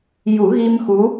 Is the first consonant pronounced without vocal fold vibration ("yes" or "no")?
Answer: no